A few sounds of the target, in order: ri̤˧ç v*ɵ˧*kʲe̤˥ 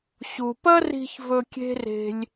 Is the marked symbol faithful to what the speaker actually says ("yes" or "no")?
yes